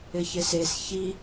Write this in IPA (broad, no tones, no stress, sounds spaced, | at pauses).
ɪ ç ɪ s e s ç i